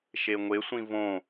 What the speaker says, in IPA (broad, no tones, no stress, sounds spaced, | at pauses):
ʃ e ŋʷ e sʷ ĩ v õ